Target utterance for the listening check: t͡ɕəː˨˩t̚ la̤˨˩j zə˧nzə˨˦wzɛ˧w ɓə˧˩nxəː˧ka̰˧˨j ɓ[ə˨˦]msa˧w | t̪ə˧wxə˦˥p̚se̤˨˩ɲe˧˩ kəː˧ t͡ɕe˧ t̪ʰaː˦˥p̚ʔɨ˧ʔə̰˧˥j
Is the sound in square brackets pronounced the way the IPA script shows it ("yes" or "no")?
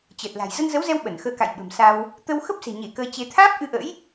no